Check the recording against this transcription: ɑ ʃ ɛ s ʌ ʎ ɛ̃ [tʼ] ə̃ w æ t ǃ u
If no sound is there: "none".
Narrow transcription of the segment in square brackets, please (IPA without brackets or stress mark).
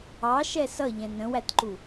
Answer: n